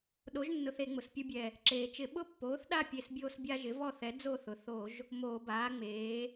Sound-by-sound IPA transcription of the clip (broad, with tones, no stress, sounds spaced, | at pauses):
ɗ o˩˥ ʒ nː ʊ˧˩˧ θ e˧˩˧ ŋ͡m ʊ˩ s pʲ u˦ bʲ ɛ˧˩ | ǁ eː˩ t͡ʃ ɪ˧˩˧ ɓ ʊ˥˨ pː oː˩˥ θ ɗ a˥˨ pʲ e˧˩ s bʲ oː˦ s bʲ a˦ ʒ ɪ˩˥ v ɔ˥˨ θ ɛ˩˥ d͡z o˥˨ θ ʊ˩ θ o˧˩˧ ʒ | m oː˧˩˧ b aː˩˥ ŋ͡m eː˩˥